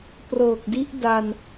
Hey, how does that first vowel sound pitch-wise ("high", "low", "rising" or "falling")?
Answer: low